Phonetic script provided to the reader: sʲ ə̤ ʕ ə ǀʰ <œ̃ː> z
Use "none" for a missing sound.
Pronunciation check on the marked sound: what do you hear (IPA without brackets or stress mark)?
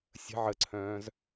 œ̃ː